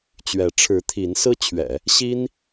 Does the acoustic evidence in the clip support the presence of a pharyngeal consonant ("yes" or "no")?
no